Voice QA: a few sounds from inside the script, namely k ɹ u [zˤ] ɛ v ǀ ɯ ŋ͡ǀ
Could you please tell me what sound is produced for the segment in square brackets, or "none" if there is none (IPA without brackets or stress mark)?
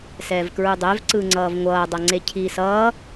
dˤ